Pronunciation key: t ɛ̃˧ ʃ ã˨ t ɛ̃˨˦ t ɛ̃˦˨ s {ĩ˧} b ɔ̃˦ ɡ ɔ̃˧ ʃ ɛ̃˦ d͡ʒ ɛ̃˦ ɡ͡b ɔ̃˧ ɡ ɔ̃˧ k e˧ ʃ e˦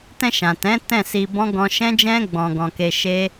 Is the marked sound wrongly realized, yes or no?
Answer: yes